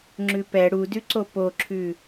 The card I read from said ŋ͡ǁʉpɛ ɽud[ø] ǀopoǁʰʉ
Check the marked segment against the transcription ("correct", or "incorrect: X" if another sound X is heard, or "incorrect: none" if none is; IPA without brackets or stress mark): incorrect: ʉ